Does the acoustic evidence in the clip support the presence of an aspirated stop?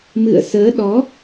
no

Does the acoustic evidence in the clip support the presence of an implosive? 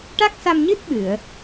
yes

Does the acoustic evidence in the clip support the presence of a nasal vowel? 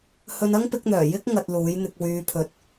no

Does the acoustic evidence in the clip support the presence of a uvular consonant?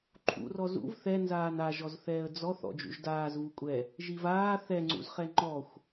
yes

